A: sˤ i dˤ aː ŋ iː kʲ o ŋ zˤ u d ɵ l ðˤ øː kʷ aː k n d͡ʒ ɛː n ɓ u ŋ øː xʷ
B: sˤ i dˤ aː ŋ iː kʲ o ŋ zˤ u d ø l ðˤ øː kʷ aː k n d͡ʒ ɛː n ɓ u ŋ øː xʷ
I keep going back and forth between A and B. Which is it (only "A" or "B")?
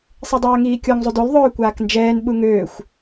B